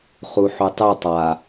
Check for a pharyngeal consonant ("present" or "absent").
present